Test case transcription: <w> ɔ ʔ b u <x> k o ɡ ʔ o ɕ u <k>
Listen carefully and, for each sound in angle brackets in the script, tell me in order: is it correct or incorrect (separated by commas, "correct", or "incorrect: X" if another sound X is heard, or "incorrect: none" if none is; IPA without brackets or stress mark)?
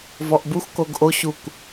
incorrect: v, correct, correct